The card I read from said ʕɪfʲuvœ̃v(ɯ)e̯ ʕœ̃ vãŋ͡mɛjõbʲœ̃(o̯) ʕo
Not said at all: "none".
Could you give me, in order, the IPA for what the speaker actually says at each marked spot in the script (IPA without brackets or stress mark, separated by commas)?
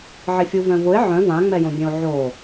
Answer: ʊ, o̯